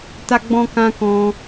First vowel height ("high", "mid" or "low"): low